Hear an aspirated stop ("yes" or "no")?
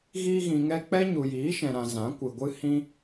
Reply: no